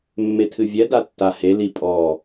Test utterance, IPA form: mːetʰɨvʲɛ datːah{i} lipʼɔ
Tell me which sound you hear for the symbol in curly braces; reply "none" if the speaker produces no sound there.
e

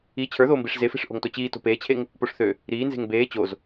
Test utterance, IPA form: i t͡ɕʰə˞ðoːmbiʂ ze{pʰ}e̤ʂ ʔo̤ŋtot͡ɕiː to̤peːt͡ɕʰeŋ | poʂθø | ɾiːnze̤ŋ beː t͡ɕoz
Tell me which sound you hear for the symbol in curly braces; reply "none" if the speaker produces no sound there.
f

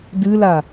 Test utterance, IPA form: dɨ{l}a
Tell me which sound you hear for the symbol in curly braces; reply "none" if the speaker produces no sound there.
l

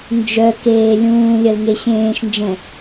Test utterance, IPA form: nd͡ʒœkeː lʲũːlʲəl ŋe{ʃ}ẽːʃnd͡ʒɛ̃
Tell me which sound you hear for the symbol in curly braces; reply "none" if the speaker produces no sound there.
ɕ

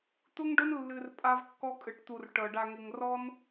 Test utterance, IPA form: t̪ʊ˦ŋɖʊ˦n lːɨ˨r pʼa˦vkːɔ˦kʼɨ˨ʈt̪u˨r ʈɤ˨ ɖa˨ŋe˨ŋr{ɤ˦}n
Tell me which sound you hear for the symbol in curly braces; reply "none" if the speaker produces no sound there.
ɔ˦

